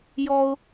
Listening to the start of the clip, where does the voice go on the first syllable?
high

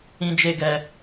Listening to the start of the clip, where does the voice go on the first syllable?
high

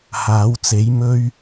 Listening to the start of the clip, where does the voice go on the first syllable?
rising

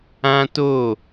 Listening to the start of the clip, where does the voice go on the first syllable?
high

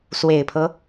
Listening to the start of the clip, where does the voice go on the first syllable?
low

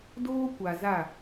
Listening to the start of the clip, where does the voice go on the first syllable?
high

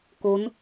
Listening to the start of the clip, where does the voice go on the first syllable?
rising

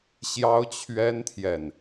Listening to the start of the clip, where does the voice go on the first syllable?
high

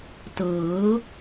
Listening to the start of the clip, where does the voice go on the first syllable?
rising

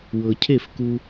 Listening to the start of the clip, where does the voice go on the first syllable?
low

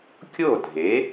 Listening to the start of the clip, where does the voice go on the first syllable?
falling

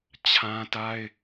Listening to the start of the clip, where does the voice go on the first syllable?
high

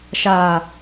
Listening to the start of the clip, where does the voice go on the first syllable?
low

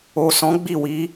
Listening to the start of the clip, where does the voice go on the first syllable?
low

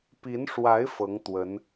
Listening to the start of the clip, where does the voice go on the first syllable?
rising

